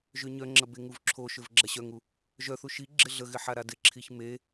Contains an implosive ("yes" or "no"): no